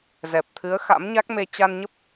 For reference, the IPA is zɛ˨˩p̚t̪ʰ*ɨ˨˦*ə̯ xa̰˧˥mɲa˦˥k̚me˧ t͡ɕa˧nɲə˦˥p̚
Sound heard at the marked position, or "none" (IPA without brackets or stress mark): ɨ˨˦